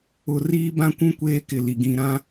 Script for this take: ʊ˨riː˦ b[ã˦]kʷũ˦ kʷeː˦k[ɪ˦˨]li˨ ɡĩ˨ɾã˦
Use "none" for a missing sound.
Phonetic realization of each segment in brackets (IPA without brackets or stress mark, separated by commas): ã˦, ɪ˨